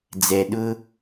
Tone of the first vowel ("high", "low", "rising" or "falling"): low